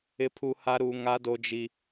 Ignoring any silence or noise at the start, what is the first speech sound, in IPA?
ɪ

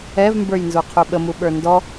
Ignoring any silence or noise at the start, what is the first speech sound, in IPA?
ɛ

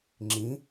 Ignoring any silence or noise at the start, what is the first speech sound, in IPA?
ŋ͡ǁ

